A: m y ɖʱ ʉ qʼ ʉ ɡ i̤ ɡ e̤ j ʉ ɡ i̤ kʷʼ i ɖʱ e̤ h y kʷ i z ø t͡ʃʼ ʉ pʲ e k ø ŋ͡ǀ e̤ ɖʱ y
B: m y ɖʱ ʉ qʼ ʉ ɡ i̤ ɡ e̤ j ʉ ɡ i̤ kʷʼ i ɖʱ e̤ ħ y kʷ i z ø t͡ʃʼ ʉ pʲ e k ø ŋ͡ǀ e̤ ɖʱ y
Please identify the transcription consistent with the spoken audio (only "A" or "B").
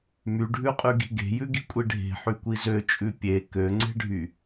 B